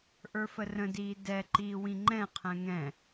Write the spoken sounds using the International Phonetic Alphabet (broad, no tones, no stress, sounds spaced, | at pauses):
ʔ ə˞ f ə r ə̃ d iː d ɛ ǃ iː w ĩ ŋ͡ǃ ɛ̃ qʰ ɛ̃ ŋ ɛ̃